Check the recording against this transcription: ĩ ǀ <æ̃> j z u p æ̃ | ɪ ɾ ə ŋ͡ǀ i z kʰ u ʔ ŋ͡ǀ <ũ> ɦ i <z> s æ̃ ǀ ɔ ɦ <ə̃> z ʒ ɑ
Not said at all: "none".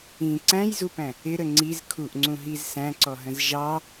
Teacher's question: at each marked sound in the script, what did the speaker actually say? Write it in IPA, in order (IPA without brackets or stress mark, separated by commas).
æ̃, ũ, z, ə̃